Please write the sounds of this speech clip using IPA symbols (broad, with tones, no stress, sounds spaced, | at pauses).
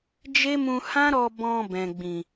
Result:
d͡ʒ e˦ m ũ˧ h ã˦ ɾ ɔ˧ b ɔ̃˧ b ɛ̃˨ ɡ͡b ĩ˨